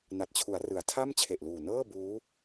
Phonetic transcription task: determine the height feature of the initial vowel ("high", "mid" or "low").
low